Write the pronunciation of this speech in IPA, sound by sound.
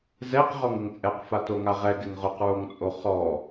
z ɛ q ʁ ɔ ŋ ɪ ŋ t͡sʼ ɛ q f a t o ŋ a ʁ ɛ ɡ ɪ ŋ ʁ ʊ q ɹ o ŋ t͡sʼ o χ ɔ

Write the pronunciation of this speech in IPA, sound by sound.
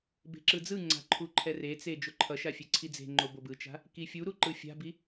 b e̤ ǁ ɯ d͡z ɯ ŋ͡ǀ a̤ ǃʰ u ǃʰ ɛ r e t͡s e d͡ʒ o ǃʰ ʌ ʃ a fʲ e ǀʰ i d͡z e̤ ŋ͡ǃ o b o b ɯ t͡ʃ a̤ | k i fʲ u ɾ u ǃ ɯ fʲ a̤ b i

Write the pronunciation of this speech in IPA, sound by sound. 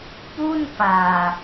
p u˥˩ n p aː˨˩

